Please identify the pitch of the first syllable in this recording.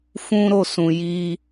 high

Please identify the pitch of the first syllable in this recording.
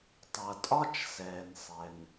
low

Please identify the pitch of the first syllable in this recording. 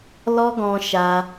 high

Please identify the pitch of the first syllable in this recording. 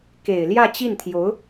low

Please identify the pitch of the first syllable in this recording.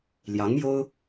rising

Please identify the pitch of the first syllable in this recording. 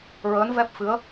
rising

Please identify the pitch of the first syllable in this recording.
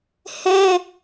high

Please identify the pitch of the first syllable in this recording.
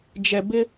low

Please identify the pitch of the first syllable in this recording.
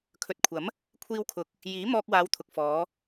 low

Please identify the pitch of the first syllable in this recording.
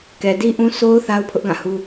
low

